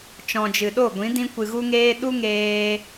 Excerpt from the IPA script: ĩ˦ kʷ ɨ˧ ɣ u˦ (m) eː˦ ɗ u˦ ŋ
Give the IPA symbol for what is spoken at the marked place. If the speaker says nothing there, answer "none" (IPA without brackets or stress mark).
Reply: ŋ